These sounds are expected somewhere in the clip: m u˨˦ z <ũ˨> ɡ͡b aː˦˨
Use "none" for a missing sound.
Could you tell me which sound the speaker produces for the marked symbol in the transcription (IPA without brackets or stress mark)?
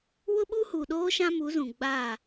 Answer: ũ˨